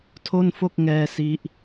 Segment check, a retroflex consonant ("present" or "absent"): absent